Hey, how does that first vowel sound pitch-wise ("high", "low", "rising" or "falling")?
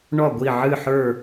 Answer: falling